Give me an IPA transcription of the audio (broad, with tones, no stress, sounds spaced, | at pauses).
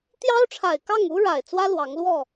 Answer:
t̪ j ɑ˦ ʊ̯ ʈ͡ʂʰ a˨˩ ɪ̯ k ɑ˥˨ ŋ u˦ ɻ a˨˩ ɪ̯ t͡s w ä˦ l w ɑ˨˦ ŋ l w ɔ˥˨